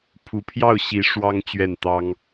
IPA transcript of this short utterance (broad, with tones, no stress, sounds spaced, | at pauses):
pʰ u˧˥ pʰ j ɑ˥˩ ʊ̯ ɕ i˧˥ ʂ w ɑ˥ ŋ t͡ɕ ɥ ɛ˥˩ n t̪ ɑ˥ ŋ